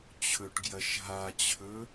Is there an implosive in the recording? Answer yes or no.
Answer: no